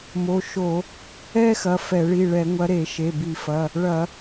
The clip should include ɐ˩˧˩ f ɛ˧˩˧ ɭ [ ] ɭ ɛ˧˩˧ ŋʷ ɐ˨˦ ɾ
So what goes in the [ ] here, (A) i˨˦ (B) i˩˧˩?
B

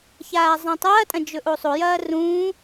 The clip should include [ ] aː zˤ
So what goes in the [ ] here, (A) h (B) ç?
B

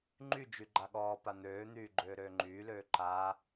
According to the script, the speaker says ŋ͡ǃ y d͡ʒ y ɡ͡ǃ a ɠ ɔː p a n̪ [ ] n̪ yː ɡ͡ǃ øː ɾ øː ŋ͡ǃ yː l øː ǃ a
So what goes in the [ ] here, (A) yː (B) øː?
B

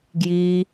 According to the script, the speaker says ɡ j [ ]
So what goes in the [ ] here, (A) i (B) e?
A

